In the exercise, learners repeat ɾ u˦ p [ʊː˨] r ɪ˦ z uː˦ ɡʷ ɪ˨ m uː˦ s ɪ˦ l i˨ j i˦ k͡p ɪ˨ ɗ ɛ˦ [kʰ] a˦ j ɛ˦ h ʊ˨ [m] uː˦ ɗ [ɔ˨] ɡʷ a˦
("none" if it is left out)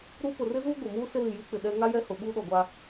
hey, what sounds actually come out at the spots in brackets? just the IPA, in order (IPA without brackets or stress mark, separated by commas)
ʊ˨, ŋ, ɓ, ɔ˨